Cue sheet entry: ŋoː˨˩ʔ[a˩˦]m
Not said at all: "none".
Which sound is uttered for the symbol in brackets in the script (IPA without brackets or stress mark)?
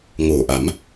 a˩˦